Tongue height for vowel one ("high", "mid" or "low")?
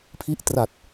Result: high